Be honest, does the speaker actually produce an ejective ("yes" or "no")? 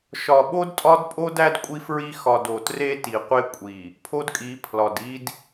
yes